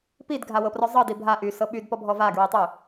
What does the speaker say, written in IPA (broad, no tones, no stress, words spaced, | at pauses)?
pidɡʱawɤprɔ zˤɤdi bʱa ʔysɤ ɓydpɔbʱɔ vaɡɹitˤy